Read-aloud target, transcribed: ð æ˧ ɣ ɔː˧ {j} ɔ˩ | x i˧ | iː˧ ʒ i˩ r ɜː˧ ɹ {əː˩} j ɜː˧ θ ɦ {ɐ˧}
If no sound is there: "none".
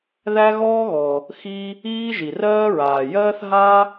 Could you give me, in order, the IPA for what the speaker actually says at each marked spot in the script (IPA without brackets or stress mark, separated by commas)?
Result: ɣ, aː˩, a˧